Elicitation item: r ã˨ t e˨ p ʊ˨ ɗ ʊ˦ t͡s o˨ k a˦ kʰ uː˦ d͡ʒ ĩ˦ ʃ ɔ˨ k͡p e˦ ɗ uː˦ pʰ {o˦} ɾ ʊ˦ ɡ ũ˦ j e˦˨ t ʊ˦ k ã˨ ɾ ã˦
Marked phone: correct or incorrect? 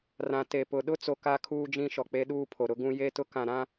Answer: incorrect